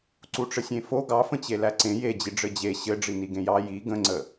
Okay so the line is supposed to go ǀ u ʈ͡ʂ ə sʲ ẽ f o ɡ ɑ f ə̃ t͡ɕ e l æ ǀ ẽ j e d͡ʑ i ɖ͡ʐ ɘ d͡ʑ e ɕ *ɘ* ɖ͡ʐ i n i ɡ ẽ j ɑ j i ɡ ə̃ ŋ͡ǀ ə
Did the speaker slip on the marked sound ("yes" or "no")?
no